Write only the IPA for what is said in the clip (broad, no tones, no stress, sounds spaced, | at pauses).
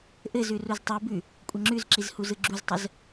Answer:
ʔ ɘ z ʉ r u z tˤ ɯ b ʉ | kʷʼ ə ŋ͡ǁ ʉ z ǁ i z h u z ɯ ɡ͡ǁ u z tˤ ə z